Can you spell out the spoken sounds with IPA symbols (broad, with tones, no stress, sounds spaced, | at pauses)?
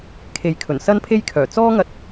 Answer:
kʰ e˨ j kʰ ɵ˨˩ n s ɐ˥ n pʰ e˥ j kʰ œː˨˩ t͡s ɔː˥ ŋ ɐ˧ t̚